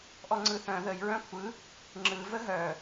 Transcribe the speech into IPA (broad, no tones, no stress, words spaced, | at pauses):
ʔɔŋ͡ǀɯθœ̃ ðəj ɹœ̃kʷʰɯ | ŋ͡ǁɯ vəɦœ